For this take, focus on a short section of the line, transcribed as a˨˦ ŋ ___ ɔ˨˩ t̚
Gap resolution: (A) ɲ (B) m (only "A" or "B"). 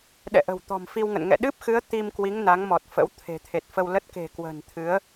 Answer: B